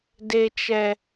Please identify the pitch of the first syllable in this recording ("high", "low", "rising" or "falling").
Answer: low